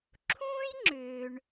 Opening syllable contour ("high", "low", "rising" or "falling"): high